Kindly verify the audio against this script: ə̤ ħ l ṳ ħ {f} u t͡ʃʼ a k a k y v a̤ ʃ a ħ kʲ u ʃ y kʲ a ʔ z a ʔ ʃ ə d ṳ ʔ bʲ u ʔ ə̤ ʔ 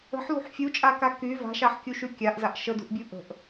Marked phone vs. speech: incorrect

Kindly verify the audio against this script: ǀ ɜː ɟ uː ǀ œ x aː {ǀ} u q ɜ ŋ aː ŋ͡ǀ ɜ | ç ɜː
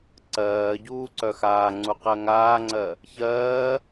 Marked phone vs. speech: incorrect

